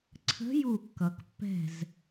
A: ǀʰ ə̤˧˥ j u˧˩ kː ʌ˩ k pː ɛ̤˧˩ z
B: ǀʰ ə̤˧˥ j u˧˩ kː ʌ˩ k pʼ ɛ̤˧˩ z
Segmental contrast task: A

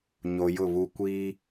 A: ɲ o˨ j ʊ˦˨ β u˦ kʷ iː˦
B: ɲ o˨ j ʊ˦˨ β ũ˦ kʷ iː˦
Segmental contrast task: A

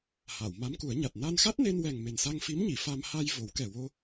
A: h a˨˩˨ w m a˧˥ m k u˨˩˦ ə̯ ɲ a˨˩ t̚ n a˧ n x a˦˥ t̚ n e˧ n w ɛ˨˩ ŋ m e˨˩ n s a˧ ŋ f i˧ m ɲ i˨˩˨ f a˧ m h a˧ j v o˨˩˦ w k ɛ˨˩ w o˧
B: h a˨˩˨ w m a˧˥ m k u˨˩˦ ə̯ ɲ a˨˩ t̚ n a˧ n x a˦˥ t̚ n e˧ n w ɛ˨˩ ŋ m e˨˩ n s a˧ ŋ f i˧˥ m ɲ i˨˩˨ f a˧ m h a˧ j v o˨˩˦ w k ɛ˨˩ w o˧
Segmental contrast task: B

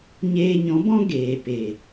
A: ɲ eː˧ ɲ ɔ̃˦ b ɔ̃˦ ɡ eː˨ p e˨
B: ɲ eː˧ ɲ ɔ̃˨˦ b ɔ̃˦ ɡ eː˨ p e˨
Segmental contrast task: B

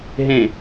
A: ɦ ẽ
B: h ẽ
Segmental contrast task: A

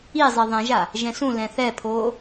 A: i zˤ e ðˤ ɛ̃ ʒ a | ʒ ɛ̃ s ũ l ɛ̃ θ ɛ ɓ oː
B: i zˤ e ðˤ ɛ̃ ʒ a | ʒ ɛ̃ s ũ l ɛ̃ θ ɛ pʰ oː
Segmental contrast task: B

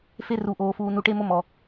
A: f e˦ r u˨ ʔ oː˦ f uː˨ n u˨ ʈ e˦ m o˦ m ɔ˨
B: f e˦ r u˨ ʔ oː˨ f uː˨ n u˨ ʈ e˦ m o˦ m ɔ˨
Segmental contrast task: B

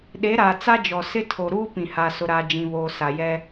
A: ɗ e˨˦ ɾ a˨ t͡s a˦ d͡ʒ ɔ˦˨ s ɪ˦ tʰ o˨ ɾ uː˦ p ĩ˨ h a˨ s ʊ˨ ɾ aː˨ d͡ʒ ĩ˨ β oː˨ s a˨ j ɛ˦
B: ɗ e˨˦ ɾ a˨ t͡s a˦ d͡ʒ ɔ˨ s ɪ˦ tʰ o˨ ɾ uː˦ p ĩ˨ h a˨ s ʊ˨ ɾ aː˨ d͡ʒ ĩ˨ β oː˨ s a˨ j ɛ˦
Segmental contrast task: B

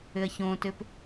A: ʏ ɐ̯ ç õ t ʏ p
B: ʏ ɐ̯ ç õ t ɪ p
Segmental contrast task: A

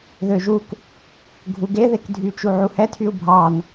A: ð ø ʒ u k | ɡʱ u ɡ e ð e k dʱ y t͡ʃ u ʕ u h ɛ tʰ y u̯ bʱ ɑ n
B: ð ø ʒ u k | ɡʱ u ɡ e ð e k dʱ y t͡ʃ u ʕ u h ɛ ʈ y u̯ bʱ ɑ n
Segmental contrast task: A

